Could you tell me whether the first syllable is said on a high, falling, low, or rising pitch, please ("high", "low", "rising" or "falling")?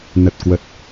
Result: low